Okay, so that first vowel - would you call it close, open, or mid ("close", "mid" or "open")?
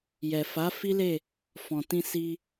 mid